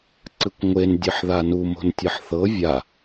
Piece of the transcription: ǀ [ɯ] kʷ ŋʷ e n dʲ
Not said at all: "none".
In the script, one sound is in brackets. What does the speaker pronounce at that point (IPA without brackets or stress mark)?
ɯ